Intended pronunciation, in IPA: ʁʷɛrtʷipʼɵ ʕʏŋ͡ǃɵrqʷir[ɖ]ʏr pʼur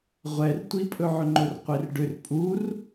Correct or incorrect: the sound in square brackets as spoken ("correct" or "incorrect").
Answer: correct